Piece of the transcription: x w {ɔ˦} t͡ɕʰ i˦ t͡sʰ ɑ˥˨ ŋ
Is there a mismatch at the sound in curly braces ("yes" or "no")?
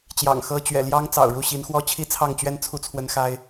no